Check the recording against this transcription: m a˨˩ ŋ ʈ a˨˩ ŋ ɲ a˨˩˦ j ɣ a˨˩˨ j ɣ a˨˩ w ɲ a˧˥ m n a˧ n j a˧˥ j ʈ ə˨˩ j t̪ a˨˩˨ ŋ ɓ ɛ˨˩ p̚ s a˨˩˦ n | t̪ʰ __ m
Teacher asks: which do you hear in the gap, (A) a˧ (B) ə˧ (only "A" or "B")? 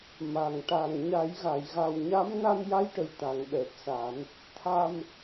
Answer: A